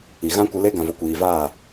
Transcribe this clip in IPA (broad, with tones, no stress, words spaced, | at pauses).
i˨ ɣã˦kʷə˧le˦ ɡã˨vo˨kʷiː˨vaː˦˨